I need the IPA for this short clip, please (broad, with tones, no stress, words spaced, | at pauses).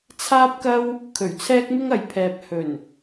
t͡sʰaː˥p̚kɐ˥w | kʰɵ˨˩ɥt͡sʰɛː˥k̚mɪ˥ŋɐ˨j pʰɛː˨p̚ hɵ˨˩n